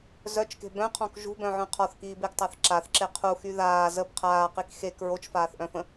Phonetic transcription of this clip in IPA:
z œ t͡ʃ k e̤ b œ̃ qʰ ɔ̃ k ʒ ṳ b œ̃ ʕ œ̃ qʰ ɔ θ k iː b e ɡ tˤ a θ ǁ a θ ǁ e qʰ u x y ð aː z ə b qʰ aː q i k x e k ɹ o t͡ʃ f aː θ ʔ œ̃ f ə̃

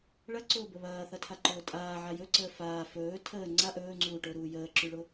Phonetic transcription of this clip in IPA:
ɭ ɐ ǀ ʊː b ə β ɐː θ ɐ tʰ a ǃ ʊː tʼ aː ʕ a j ɵ ǀ əː f aː f ɵː tʰ əː ŋ͡ǀ a ʔ ɵː ŋ͡ǀ uː ʈ ʊː ɾ uː j əː ǁ y ɭ ʊ

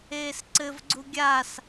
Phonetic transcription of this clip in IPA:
eː s ǀ ɘ v ɡ͡ǀ u ɡʲ a s

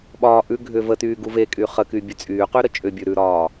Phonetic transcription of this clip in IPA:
ɓ ɒː ʔ ʉ ɡʱ ʏ v ə t yː ɡ u v e kʼ y χ ə k y bʲ ʉ t͡sʼ yː q y ɾ ə t͡ʃʼ ʏ bʲ ʉ ɾ ʉ ɾ ɒː

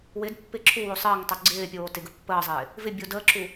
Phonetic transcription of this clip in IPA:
w ɪ d pː ɪ ǁʰ u w o sˤ ɪː ŋ tˤ o ɡ͡ǀ ɪː pʲ oː t ɪ ɡ ə pː əː zˤ ɪː | v ɪ bʲ o d əː ǁ u

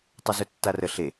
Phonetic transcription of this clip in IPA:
tˤ ɵ z ɵ tː a r ə ɬ e

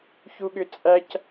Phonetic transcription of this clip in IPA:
ç u ɠ ʏ t͡sʼ æ c

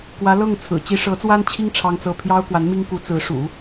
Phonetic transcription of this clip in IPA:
k w ä˧˥ l ɤ˥˩ ŋ t͡sʰ ɹ̩˨˩ t͡ɕ i˧˥ ʂ ɤ˧˥ t͡s w a˥ n t͡ɕʰ i˥ ŋ ʈ͡ʂʰ ɑ˥ ŋ t͡s ɤ˥˩ pʰ j ɑ˥ ʊ̯ k w a˧˥ n m i˥ ŋ k u˧˥ t͡s ɹ̩˧˥ ʂ ṵ˨˩˦

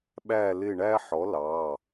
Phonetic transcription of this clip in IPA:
ɓ æ˧˩ l ɪ˧˩ ɳ æ˧ ħ ɔ˩˥ l ɑ˩˧˩

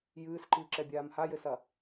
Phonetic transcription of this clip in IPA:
j ɨː s ǃ ɨː ǁ ɛ bʲ aː m h a j ɘ s ɐ

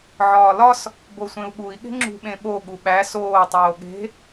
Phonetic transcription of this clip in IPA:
ʕ ɒː l ɒ s | b o sʷ ẽ u̯ ɠ u i̯ ɠ e̤ ŋ͡ǁ ṳ ɓ ẽ ɓ o ɠ u ɓ æ s oː tˤ oː ɠ e̤

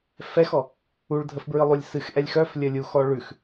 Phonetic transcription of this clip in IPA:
f ɛ x ɔ | u ɭ dʱ ə f b ɹ ɨ lˠ u lʲ s ɨ x ʔ ɛ lʲ x œ f lʲ ə lʲ u x ɔ ɭ ʉ x

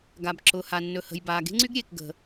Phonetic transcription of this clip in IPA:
ɡ a˩ b ǁ ʊː˩ h a˩ nː ɵ˩ h ə̤˩ j b aː˩ ɡ e̤˥ ŋ͡ǀ y˥ ɡ ɾʲ e˩ k ɡ ə̤˩

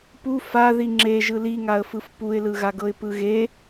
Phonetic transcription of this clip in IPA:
p u f a ð i ŋ͡ǁ e ʒ ɯ l i ŋ a ə̯ f ɯ f p u ɪ̯ l ɯ ɣ a ɡ ɤ ɪ̯ p ɯ ɣ e

